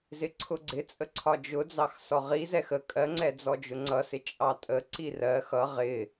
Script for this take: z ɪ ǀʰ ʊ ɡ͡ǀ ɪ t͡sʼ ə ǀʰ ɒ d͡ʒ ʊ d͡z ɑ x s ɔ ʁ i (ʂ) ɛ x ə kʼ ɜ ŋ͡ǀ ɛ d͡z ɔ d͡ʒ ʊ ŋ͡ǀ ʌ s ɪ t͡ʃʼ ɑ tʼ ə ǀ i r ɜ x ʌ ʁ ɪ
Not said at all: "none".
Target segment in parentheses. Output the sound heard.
z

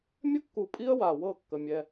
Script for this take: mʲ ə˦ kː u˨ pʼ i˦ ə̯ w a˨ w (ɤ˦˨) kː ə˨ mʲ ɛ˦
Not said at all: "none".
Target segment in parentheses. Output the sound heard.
ɤ˦˨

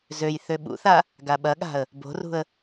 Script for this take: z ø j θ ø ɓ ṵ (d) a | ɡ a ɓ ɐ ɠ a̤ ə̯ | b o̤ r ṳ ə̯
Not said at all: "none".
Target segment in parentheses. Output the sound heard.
θ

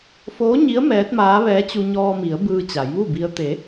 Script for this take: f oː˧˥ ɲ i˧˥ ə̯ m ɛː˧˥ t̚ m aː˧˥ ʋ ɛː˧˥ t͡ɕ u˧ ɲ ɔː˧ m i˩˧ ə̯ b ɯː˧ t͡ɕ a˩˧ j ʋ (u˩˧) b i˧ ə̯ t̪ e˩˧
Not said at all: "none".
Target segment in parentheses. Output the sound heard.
u˥˨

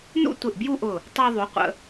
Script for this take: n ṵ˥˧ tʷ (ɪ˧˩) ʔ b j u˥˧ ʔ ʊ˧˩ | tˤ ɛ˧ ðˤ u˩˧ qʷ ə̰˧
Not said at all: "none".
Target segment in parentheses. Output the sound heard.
ɪ˧˩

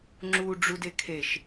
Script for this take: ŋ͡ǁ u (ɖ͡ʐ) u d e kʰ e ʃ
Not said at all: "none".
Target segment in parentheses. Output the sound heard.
ɖ͡ʐ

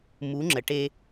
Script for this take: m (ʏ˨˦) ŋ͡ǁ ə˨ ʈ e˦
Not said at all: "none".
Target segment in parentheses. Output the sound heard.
u˨˦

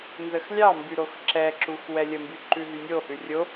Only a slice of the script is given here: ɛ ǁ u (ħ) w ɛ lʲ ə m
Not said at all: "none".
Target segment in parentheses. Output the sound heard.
x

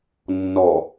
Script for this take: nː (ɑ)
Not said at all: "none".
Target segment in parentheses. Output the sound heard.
ɔ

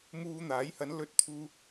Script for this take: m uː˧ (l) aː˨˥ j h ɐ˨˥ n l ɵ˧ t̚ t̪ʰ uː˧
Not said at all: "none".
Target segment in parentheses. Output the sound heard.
n̪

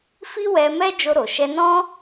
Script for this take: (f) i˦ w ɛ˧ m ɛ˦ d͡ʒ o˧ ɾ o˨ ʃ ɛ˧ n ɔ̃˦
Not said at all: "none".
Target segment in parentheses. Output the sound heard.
f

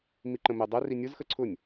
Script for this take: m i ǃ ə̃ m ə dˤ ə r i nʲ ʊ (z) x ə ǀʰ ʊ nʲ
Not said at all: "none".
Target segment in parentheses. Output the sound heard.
z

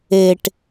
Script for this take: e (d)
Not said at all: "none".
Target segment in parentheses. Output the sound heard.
ʈ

